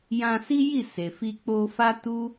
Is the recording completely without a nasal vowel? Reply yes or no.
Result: no